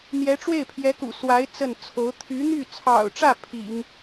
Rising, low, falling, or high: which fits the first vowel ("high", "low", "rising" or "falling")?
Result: rising